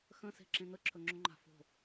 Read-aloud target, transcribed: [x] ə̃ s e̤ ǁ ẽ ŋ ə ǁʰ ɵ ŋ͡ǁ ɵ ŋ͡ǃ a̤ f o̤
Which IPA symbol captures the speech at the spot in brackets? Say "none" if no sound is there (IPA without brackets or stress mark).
x